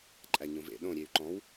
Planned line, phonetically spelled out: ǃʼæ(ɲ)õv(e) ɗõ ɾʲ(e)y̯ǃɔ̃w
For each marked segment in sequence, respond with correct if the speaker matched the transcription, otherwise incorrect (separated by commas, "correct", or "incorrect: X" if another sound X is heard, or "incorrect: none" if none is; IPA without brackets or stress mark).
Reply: correct, incorrect: ḛ, correct